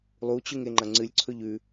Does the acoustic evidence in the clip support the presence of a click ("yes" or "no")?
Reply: yes